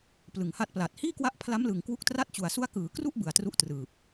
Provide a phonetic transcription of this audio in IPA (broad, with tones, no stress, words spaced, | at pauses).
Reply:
plɯ˨˩ŋha˦˥t̚pla˨˩t̚ hiː˥˩kwa˦˥ʔpʰla˦˥mlɯ˨˩ŋ kwu˦˥k̚tra˥˩t̚t͡ɕu˨˩a̯ su˦˥a̯kɯː˩˦kru˥˩ʔ bɯ˨˩a̯tru˦˥ʔ trɯː˨˩p̚